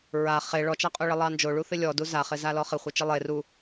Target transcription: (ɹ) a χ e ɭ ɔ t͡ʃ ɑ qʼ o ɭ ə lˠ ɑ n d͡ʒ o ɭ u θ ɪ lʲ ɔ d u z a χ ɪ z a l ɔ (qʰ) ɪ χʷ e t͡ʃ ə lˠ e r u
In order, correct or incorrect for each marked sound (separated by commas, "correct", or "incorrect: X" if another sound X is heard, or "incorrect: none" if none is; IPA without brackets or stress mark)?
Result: correct, incorrect: χ